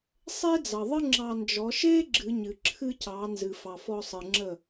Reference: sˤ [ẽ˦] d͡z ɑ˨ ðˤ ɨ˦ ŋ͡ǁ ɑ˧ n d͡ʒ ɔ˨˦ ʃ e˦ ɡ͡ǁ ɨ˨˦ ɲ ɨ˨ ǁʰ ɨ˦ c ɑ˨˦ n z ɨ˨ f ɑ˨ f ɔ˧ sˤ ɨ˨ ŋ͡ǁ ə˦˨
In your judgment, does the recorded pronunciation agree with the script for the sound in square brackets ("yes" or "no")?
no